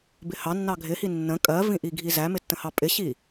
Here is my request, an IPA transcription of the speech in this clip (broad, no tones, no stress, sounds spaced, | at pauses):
b ɪ h ɑ nː ɑ ɡʱ ɪ h i nː ə̃ kʼ ɜ v ĩ ʔ i ɡʱ i z æ m ɪ tː ə̃ h ɑ pʼ ɪ ɕ i